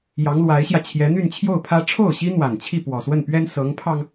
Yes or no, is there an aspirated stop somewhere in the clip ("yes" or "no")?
yes